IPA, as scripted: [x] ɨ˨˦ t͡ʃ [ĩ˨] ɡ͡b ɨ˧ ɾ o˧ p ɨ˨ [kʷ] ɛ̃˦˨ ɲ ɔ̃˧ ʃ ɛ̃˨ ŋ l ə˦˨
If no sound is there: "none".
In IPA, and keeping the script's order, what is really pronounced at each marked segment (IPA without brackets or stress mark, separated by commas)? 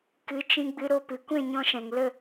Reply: k, ĩ˧, kʷ